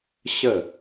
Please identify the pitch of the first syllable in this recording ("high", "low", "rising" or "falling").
falling